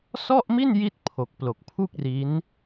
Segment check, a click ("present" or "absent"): absent